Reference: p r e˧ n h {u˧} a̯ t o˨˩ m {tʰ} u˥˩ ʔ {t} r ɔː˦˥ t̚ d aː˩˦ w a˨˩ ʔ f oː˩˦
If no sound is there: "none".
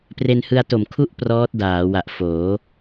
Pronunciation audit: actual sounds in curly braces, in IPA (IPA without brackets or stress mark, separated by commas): ɯ˧, kʰ, p